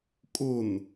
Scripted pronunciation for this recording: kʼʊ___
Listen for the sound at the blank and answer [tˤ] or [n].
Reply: n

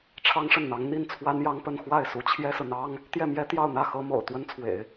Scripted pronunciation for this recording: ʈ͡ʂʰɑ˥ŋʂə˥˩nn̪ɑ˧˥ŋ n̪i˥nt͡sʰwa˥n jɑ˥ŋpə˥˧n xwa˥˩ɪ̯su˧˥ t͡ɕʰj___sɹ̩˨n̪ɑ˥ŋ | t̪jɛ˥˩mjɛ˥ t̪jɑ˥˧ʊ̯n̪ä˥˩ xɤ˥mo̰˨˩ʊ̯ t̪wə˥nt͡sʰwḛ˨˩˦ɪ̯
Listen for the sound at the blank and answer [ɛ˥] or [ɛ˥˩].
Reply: ɛ˥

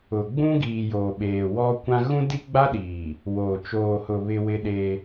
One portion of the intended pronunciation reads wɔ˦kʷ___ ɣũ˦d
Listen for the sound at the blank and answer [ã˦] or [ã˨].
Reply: ã˦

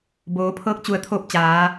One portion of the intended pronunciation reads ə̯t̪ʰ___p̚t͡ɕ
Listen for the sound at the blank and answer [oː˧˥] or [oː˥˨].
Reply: oː˧˥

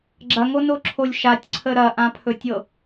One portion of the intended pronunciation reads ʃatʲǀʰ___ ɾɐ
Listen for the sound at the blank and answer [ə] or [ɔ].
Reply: ə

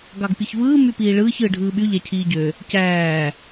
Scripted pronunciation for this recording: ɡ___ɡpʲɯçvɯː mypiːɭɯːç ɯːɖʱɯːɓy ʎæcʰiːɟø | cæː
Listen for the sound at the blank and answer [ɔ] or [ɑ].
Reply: ɑ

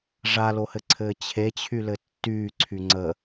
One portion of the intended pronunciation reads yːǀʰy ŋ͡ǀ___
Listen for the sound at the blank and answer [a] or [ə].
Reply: ə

